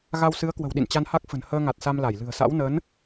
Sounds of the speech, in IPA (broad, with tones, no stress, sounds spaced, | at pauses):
ɣ a˧ w s ɨ˨˦ ə̯ k w ə̤˨˩ w ɗ ḭ˧˨ n t͡ɕ a˧ n h a˦˥ k̚ f ə̤˨˩ n h əː˧ ŋ a˨˩ t̚ s a˧ m l a˧˩ j l ɨ̤˨˩ ə̯ s a̰˧˥ w n əː˨˦ n